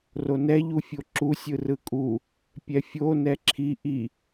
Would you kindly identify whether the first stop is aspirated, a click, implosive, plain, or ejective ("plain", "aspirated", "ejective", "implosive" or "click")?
click